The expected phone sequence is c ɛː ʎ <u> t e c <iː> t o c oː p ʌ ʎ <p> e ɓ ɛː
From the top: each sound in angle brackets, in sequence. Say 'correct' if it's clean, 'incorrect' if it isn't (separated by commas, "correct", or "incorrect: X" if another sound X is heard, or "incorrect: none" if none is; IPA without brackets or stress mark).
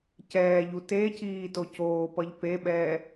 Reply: correct, correct, correct